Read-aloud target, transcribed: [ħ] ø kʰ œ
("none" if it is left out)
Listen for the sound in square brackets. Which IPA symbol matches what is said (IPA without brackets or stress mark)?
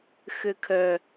x